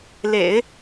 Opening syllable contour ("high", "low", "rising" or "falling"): low